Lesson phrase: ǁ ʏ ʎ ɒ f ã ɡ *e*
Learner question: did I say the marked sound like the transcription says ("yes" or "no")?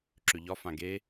yes